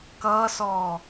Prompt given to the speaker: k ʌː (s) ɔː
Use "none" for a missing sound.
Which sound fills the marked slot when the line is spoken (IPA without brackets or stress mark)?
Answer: s